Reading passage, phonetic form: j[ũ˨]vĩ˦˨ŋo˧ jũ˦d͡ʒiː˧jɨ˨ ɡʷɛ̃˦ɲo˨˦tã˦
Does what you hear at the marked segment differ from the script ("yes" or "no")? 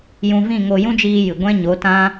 yes